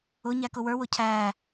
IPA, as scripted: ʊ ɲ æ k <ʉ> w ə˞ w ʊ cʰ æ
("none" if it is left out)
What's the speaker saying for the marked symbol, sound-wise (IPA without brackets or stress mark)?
ʊ